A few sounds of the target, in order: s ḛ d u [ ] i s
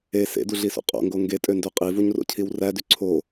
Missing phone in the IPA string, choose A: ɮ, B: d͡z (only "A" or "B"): A